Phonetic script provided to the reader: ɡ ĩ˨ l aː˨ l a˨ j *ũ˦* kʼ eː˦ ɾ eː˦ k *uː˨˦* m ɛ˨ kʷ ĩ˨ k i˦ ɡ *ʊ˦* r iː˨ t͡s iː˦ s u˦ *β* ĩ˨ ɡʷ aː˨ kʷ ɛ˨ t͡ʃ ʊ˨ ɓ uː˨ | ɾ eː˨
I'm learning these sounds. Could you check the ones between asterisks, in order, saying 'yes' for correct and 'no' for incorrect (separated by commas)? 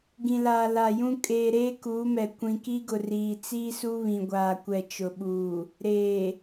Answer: yes, yes, no, yes